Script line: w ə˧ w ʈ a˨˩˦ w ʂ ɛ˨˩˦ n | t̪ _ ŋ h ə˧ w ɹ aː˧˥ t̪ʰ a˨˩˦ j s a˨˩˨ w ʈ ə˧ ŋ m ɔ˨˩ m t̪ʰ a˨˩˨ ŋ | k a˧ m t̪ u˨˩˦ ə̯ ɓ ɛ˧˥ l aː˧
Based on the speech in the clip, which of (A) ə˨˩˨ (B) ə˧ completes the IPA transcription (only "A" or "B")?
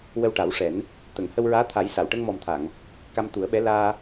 A